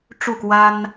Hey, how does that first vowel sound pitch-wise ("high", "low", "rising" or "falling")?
falling